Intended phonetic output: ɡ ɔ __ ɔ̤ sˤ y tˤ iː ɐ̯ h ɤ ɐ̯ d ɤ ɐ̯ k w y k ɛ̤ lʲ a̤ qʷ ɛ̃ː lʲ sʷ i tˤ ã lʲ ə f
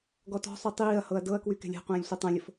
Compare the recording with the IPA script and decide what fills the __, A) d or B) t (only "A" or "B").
B